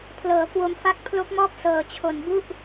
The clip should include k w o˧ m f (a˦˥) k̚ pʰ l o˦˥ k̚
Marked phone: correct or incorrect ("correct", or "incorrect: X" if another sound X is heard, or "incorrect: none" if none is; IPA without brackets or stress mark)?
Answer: incorrect: a˥˩